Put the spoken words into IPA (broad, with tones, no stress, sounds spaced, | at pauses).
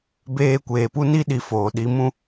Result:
b eː˧ kʷ eː˨ p u˦ n i˦ ɗ i˨ f oː˨ ɗ i˨˦ m ũ˧